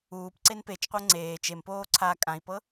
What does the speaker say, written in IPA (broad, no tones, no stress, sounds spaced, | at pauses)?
uː p ǀ e n p e t͡ʃ qʷ ɤ ŋ͡ǀ eː t͡ʃ e m p oː ǀʰ a kʼ ã i̯ p ɤ